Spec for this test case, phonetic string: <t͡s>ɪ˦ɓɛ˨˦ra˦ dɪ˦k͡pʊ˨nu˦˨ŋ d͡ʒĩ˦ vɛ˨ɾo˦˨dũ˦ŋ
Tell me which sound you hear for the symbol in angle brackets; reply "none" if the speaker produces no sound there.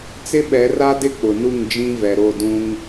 t͡s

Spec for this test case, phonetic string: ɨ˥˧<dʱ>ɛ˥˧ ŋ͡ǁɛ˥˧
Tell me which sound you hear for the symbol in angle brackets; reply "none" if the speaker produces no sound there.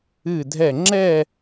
dʱ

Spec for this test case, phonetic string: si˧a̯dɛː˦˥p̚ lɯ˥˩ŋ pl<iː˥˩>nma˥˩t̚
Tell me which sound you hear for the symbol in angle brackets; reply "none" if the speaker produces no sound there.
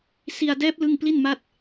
i˥˩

